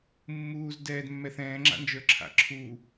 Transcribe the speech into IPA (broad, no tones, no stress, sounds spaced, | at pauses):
mː uː z d ɛː d mː ɛ θ ɛ̃ː ŋ͡ǁ a̰ n d͡ʒ ə˞ ǁʰ a̰ ǁʰ u